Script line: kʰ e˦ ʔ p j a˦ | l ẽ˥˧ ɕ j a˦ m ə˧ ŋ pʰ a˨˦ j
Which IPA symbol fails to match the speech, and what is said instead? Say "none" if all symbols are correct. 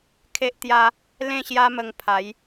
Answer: p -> t̪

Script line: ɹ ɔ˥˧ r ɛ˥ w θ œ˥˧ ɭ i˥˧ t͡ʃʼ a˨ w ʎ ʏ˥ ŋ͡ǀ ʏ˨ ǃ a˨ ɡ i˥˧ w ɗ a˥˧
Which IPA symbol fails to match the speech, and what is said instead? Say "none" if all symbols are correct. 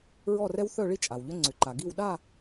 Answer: none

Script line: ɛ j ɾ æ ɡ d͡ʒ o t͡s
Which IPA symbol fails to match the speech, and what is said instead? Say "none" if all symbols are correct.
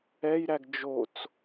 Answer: none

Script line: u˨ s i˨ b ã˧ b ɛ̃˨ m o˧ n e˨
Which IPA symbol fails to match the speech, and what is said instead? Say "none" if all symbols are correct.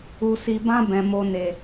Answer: none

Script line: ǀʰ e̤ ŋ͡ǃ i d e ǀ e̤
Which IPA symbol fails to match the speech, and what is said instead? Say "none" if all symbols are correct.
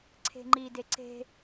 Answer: none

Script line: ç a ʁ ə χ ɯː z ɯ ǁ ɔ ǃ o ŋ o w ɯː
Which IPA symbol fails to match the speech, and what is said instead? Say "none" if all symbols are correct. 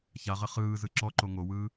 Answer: none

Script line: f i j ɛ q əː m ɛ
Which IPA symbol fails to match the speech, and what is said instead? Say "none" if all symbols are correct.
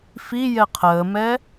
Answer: q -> qʰ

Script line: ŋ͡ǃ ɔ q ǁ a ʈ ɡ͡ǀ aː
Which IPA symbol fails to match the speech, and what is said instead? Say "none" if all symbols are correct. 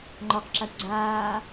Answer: none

